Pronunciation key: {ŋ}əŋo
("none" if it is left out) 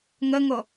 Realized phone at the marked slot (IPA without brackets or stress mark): ŋ